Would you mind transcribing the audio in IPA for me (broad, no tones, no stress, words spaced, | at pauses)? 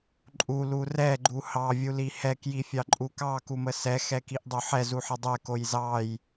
ǃʼulu rɛɡ͡ǃu hɑvʲuli hɛkjifʲɑǃʼu kɑkumə sɛxɛkiʔdˤo ħɛzuħə dˤɛkoj zɑj